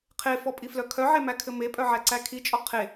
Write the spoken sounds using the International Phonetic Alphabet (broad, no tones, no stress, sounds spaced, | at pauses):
qʰ e f ɔ pʼ i f l œ kʰ œ ʕ e m æ kʰ ɘ m e pʼ œ ʕ æ ǀ æ kʰ i t͡ʃʼ ɔ qʰ e